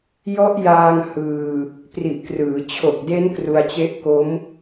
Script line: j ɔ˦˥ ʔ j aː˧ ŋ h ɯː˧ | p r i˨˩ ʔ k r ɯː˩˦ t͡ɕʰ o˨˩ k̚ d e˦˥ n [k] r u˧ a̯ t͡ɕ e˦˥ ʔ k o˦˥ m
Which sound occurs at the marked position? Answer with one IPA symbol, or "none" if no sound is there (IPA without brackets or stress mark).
k